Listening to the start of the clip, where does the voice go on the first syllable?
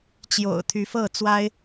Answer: low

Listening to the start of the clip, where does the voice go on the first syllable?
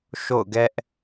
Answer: falling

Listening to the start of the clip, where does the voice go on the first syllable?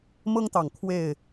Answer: high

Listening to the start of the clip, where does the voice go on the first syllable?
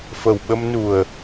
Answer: low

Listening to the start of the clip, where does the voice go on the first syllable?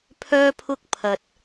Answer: high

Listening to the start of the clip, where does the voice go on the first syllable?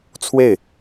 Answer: falling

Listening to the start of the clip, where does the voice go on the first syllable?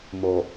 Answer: low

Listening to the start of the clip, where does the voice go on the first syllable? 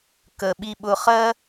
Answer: low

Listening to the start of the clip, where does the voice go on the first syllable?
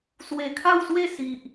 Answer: low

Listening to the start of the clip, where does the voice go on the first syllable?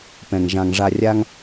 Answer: low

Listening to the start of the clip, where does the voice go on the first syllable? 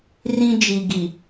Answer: high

